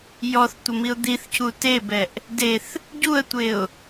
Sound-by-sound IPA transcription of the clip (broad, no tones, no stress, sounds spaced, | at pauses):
j ɔ θ tʷ ɘ m i ʊ̯ d̪ i θ c u t e b ɛ ʔ | d e θ | ɟ u ə̯ tʷ e ʊ̯